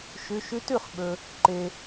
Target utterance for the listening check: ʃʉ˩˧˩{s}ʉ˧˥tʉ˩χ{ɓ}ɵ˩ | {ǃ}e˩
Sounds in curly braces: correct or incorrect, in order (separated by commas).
incorrect, correct, correct